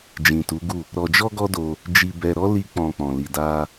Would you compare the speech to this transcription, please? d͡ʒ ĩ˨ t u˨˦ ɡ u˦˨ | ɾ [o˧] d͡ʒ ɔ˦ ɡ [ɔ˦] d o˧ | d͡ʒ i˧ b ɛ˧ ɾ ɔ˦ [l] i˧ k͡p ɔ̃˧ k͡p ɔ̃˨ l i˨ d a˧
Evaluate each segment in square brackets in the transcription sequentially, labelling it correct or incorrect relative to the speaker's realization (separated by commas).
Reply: incorrect, correct, correct